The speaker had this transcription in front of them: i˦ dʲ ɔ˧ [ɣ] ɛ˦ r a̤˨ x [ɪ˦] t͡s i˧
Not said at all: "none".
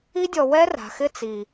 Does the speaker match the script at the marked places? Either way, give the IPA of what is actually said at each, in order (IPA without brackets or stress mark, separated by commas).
w, ɪ˦